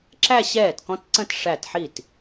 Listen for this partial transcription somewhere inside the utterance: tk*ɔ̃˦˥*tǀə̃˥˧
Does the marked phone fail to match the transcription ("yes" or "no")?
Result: no